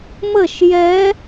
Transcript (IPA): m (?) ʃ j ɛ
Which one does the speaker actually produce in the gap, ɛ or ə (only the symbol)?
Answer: ə